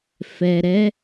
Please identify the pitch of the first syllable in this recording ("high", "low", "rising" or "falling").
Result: low